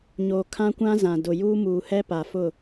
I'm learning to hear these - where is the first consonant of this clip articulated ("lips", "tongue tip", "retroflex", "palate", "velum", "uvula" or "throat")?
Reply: palate